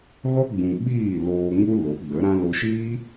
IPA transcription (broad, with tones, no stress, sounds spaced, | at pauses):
ɣ ɔ˦ ɡ͡b ũ˨ ɓ iː˦˨ l oː˧ ŋ u˦ l o˨˦ ɡ͡b ə˨˦ ɾ ã˦ l o˧ ʃ iː˦